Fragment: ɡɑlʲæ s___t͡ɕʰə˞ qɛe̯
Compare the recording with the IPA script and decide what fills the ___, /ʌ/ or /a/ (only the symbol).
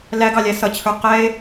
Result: ʌ